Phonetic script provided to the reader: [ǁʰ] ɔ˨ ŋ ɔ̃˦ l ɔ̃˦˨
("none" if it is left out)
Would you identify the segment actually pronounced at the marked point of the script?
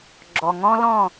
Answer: ɡ͡ǁ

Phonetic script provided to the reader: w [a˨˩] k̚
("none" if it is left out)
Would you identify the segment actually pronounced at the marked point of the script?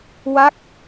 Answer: a˦˥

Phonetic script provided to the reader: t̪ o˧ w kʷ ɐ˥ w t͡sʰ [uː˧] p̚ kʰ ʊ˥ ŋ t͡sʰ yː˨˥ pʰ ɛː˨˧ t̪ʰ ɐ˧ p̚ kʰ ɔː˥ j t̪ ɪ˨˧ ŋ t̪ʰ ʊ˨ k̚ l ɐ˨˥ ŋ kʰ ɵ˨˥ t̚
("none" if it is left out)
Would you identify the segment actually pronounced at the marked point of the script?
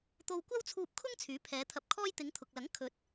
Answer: uː˧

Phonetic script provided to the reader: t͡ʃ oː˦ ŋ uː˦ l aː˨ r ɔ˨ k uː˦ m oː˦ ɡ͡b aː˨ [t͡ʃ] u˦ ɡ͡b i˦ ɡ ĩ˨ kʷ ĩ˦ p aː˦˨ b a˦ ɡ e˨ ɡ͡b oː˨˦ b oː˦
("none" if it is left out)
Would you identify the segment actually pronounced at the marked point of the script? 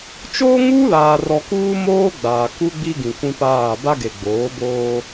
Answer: k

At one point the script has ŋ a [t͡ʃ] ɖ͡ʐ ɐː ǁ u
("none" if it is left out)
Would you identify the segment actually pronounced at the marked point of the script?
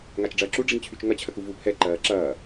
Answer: t͡ʃ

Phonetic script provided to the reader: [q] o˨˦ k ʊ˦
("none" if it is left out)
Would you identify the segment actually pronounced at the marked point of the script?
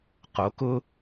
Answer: q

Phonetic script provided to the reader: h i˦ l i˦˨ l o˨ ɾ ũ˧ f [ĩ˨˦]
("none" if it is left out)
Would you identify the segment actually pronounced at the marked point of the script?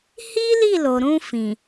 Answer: ĩ˨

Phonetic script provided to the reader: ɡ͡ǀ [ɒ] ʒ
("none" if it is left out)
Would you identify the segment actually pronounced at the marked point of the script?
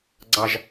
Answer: ɑ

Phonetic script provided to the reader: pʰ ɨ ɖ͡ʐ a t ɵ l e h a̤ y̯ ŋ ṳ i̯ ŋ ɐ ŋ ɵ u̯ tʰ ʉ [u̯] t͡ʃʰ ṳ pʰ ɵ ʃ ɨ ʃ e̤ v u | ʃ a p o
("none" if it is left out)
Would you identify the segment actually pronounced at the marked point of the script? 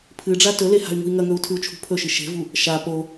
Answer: u̯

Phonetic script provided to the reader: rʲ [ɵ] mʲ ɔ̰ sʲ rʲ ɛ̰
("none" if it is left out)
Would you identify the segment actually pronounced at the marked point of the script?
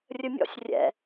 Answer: ɵ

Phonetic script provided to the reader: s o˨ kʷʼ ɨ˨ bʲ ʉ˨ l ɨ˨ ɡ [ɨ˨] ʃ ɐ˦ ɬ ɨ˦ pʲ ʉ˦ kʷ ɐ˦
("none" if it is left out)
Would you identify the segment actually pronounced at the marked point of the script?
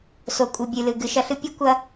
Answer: ɨ˨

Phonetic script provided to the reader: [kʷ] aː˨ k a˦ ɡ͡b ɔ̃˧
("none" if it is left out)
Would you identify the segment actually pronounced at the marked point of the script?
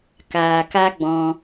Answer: k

